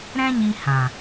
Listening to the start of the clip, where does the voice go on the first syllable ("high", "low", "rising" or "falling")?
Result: high